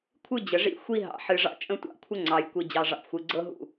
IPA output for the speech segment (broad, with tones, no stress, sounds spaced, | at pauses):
kʷʰ ɨ˦ d͡ʑ ə˨ ʐ ḭ˦˨ xʷ i˦ ɦ ɑ̰˨ ħ ɨ˨ ʐ ɑ̰˦ t͡ʃʼ ə̃˦ tʷ ɑ̰˦˨ kʷʰ ə˦ ŋ͡ǀ ɑ˨ j kʷ i˨ d͡ʑ ɑ˨ ʐ ɑ̰˨ p xʷ ɨ˨ ɡ͡ǀ ɤ˦ ɦ ṵ˦˨